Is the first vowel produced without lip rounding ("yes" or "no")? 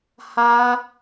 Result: yes